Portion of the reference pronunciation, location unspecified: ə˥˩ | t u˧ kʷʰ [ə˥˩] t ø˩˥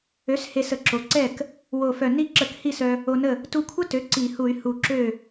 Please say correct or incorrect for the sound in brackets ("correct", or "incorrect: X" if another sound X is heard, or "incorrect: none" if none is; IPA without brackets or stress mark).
incorrect: ə˦˥